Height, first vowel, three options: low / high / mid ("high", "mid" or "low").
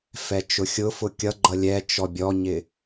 mid